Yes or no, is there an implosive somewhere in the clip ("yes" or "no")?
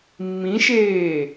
no